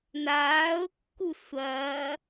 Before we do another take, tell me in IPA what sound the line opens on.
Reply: n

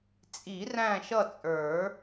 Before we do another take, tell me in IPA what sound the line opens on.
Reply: t͡sʼ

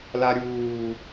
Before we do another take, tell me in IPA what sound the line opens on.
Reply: l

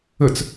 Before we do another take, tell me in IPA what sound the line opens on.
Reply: ə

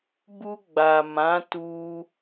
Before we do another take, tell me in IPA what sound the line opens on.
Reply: b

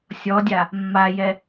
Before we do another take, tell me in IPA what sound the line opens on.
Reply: sʲ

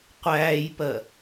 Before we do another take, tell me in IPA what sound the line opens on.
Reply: qʷ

